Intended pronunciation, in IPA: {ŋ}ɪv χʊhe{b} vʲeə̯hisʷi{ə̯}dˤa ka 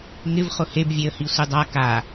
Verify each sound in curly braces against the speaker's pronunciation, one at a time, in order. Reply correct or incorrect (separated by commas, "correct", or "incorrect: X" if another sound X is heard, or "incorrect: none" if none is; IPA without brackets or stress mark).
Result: correct, correct, incorrect: none